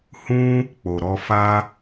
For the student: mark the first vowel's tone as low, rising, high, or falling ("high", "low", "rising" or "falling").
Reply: high